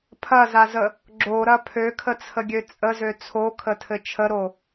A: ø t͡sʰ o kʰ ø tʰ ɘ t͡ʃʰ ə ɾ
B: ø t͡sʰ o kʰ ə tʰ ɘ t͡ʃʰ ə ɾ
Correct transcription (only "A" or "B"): B